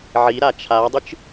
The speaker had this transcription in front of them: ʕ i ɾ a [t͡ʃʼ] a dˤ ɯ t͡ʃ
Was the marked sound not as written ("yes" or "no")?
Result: yes